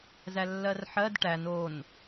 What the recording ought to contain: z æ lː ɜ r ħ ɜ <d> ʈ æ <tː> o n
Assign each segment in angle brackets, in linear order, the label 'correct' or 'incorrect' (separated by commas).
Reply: correct, incorrect